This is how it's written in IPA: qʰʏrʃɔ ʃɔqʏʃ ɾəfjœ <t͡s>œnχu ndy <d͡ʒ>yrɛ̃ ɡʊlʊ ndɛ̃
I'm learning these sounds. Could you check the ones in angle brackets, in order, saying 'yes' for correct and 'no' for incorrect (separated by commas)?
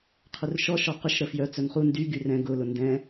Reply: yes, no